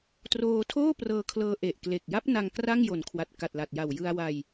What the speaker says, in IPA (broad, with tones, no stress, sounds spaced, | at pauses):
t r oː˧ tʰ oː˥˩ p r ɤː˧ kʰ l ɤː˧ ʔ e˨˩ ʔ k l e˨˩ k̚ j a˦˥ p̚ n a˧ ŋ k r a˥˩ ŋ j o˨˩ n kʰ w a˨˩ t̚ k a˨˩ t̚ l a˨˩ t̚ j a˨˩ w j ɯ˧ a̯ w a˧ j